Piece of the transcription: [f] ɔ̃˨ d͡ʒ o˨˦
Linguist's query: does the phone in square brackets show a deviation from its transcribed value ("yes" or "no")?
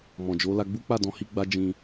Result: yes